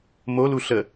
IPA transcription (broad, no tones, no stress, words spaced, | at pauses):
molu ɬə